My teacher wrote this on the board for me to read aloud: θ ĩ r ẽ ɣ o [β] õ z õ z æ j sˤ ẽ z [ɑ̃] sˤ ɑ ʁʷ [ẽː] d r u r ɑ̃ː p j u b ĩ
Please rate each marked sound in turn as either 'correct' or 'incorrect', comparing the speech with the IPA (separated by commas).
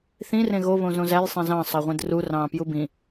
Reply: correct, correct, incorrect